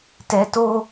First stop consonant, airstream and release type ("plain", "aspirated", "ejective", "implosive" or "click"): plain